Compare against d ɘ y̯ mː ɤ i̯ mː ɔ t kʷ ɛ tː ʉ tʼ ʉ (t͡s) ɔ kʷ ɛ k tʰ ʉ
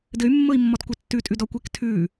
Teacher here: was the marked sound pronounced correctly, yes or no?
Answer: no